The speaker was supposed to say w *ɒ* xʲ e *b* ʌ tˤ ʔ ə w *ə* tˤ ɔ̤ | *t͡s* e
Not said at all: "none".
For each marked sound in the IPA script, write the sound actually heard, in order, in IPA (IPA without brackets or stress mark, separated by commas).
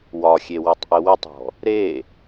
ɒ, w, ə, ɾ